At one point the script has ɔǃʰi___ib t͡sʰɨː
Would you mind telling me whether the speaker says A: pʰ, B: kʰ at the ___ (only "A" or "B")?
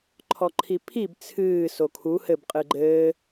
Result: A